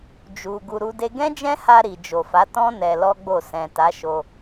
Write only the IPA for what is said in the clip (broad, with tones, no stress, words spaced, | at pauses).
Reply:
d͡ʒu˨ ɡu˧ɾu˦de˦ ɡɛ̃˦d͡ʒɛ̃˦ha˧ ɾi˨ d͡ʒo˨fa˨˦ tɔ̃˦ nɛ˧lɔ˦ɡ͡bo˦˨ sɛ̃˨ta˨˦ ʃo˧